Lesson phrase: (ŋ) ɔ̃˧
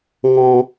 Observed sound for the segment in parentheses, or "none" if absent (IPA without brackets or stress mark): ŋ